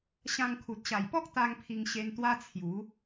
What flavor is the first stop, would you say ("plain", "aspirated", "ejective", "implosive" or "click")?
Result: aspirated